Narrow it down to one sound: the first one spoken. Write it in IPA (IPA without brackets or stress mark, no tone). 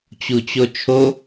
t͡ɕ